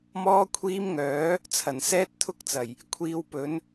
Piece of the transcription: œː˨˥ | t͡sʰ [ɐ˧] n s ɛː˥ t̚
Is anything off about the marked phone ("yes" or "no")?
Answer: yes